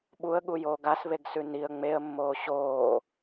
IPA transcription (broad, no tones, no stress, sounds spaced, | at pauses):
ɓ u ə̯ ɠ u j oː ɡ a s β e ɡ s ʉ n i ə̯ ŋ͡m e ə̯ mː oː ɕ oː